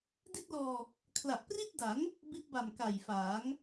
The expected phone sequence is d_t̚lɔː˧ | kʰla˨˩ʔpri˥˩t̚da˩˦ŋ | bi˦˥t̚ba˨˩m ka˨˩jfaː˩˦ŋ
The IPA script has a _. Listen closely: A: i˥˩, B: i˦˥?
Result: A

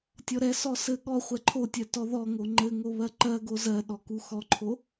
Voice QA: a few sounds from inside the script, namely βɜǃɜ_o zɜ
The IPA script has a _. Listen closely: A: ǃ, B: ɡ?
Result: B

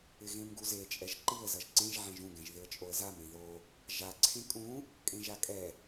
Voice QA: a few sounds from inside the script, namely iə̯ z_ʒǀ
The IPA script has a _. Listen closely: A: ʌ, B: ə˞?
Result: A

